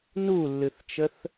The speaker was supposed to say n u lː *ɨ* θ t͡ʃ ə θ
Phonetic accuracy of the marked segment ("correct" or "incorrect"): correct